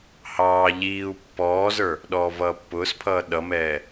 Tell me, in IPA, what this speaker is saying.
h ɑː ʎ iː u̯ pː ɔː z ə˞ | ɗ ɔː v ʌː pː ʊː s pʰ ʌː ɗ ʌ m ɛː

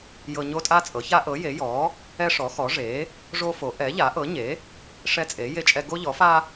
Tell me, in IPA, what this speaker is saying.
j ɤ˦ ɲ o˦ tʼ a˦ t͡sʼ ɤ˩˥ ç a˦ ʔ ɤ˩˥ j e˩˥ j ɔ˩˥ | ɛ˦ ʂ ɔ˩˥ x ɔ˩˥ ʐ e˩˥ | ʐ o˦ f o˩˥ ʔ ɛ˩˥ ʎ a˩˥ ʔ ɤ˩˥ ɲ e˩˥ | ʂ ɛ˦ t͡sʼ e˩˥ j e˦ t͡ʃʼ ɛ˦ ɡ o˦ ʎ ɔ˩˥ f a˦

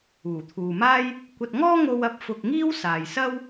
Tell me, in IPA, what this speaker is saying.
uː˨˩ t̪ʰ uː˨ m aː˥ j | kʷ ɐ˧ t̚ ŋ ɔː˥ ŋ o˥ w ɐ˥ p̚ f ʊ˧ k̚ ŋ iː˥ w s aː˨ j s ɐ˥ w

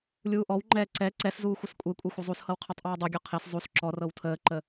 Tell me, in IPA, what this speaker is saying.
lʲ uː ʔ ɔ w ŋ͡ǃ ɛː ǀ ɛ ǀ ɛ s z uː xʷ ə s kʷʼ e kʷʼ e xʷ ɤ zˤ u s h ɤ w qʰ ɤ tˤ ʔ ɛː dˤ u ɡʲ ɔ qʰ e s zˤ u s ǁ ɔ r ɤ w tʰ əː ǃ ə

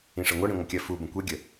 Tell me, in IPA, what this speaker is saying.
ĩ ʂ ʌ ŋʷ ʌ ɽ ĩ ŋʷ ə kʲ ɜ f u b ə̃ kʷ e ɡʲ ə

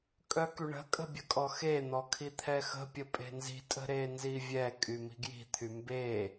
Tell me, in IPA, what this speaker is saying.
kʼ œ k y ɳ ə̤ kʼ ə̤ bʲ ə kʼ ɔ x e n̪ ɔ kʰ i t̪ʰ ɛ x ə̤ pʲ ə pʼ e̤ n z i̤ tʼ ə̤ ɾ e n z i vʲ ɛ kʼ y m i̤ ɡ j i̤ t̪ʰ y m b e

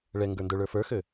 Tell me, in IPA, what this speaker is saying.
ɭ ɛ ŋ ɡ ə˞ n d ə˞ ɭ ə˞ f ə˞ x ø

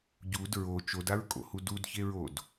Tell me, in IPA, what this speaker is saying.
ɟ u d ɹ o t͡ʃ o d a ɹ kʼ o̰ h u d u d ç e ɹ o d

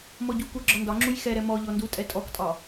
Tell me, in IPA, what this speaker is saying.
m ɔ ɟ u k u ɡ͡ǁ ɒ n d ɒ ŋ͡ǁ u j x ɛ ɾ ɛ m ɔ ʎ ɔ n d u tʼ ɛ tʼ ɔ k tʼ ɒ

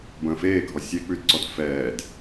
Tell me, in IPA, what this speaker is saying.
b ə̃ː f eː ɡʱ ɔ sʲ e k͡p ʉ d ǀ ɔ d f ɛː d

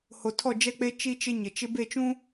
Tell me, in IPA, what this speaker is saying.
h o˨ tʰ ɔ˦˨ d͡ʒ ɛ˦ k͡p e˦ t͡ʃ i˦ t͡ʃ ɪ˦ ɲ ɪ˨ t͡ʃ ɪ˦ b e˦˨ t͡ʃ ũ˦

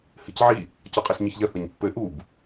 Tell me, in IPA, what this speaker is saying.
h ɨ c ʕ i | c ɔ qʼ e s ɲ ɨ ç ʎ ɐ θ ɐ ɲ pː ɘ ʔ u b

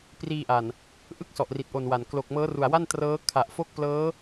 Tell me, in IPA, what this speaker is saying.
p r iː˧ ʔ a˨˩ n | ʔ ɯ˥˩ k̚ s ɔ˨˩ ʔ r i˨˩ t̚ ʔ o˨˩ n w a˨˩ n k l o˨˩ k̚ m ɤː˦˥ r u˨˩ a̯ w a˥˩ n t r ɤː˦˥ kʰ a˨˩ ʔ f o˥˩ k̚ p l ɤː˦˥

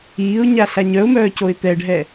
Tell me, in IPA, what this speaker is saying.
iː ʊ̯ ɲ a ɬ a ɲ œ ʊ̯ m œː c o ɪ̯ t̪ ɛ ɖʱ ɛ

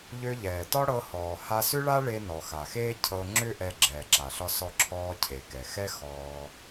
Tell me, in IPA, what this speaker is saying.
ʎ ø˧ ʎ ɛː˩ t ɒ˥ ɽ ɤ˧ h ɔː˩ h a˧ s ʏ˥ ɭ a˥ ɭ e˧ n ɔ˩ x a˩ x eː˥ cʰ ɤ˧ ŋ͡ǁ ʏ˥ ʔ ɛ˧ ɡ͡ǁ ɛː˩ ǁ a˩ ɬ ɒ˧ s ɔ˧ ǁʰ ɔː˧ cʰ e˩ k ɛ˩ x ɛ˥ x ɔː˧

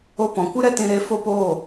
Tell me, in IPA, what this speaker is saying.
o˧ p ɔ̃˨ kʷ ɨ˦ ɾ ɛ˦ t ĩ˧ ɾ e˧ f o˦ p oː˦˨

